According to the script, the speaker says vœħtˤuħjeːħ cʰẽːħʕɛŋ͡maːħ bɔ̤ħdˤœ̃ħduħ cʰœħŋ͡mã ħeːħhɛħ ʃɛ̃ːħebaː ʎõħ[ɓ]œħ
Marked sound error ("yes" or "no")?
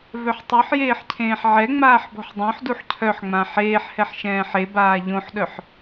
yes